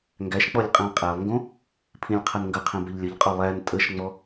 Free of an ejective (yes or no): no